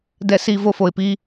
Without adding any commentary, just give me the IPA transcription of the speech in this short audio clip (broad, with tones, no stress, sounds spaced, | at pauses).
d ɛ˨ s i˨ v o˧ f o˨ ɪ̯ p i˦